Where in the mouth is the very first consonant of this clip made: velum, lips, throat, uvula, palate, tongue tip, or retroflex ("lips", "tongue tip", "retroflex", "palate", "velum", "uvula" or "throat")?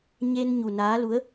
palate